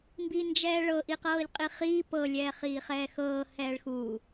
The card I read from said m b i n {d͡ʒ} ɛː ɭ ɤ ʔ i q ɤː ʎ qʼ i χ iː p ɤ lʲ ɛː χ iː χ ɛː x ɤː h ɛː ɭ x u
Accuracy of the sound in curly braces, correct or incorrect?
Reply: correct